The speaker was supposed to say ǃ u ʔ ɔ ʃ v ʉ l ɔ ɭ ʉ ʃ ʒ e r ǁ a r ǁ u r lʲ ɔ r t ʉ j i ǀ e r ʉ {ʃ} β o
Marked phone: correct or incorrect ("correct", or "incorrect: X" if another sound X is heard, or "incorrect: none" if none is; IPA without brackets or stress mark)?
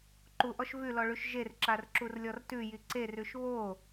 correct